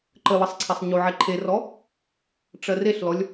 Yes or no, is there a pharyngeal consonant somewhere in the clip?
yes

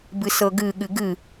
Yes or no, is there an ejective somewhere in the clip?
no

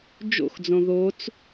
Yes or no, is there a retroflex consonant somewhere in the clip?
no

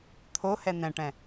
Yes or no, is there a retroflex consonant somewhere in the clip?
yes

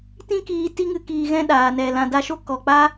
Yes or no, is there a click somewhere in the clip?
no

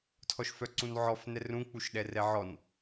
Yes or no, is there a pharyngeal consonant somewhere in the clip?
yes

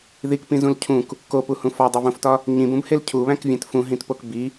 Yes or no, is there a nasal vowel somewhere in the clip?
yes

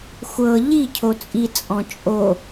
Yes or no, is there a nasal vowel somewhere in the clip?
yes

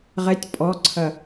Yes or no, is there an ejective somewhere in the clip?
yes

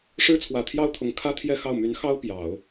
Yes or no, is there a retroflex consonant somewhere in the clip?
yes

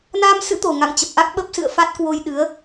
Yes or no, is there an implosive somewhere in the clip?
yes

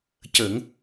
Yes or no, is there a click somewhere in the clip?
no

